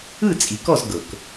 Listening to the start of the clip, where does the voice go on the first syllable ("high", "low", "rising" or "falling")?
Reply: falling